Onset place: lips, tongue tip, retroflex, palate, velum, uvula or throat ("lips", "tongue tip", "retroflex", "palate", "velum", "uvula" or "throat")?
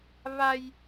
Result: lips